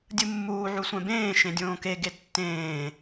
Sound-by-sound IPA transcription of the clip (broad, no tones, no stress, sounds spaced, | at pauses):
dʲ ɯ mː uː ʕ u sʷ ɛ̃ b ẽː ʃ ẽ dʲ õː k e ɡ e tː ẽː